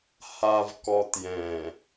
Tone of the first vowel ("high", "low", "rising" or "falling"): low